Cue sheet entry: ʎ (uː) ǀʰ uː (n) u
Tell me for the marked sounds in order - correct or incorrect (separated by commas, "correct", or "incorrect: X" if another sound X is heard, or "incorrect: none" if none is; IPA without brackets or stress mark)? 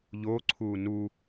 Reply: incorrect: oː, correct